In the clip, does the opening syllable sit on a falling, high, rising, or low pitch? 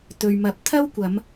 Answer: low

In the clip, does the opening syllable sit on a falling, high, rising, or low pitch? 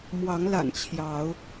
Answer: rising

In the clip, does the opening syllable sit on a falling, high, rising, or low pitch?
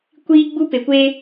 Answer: high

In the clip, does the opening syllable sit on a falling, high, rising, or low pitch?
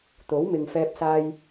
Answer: rising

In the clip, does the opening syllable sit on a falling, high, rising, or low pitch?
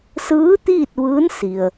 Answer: rising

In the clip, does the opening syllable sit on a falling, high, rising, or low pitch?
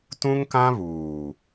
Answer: high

